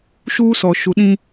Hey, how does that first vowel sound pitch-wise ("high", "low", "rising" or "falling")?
high